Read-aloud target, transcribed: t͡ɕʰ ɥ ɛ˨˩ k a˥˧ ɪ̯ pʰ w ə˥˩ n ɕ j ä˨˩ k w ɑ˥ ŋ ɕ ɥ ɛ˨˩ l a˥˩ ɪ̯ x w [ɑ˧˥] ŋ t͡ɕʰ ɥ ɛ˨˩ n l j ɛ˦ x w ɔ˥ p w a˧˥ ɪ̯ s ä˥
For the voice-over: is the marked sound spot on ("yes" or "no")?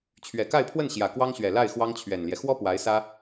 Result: no